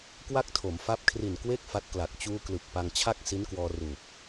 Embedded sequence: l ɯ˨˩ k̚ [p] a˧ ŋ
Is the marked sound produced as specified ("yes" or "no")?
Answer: yes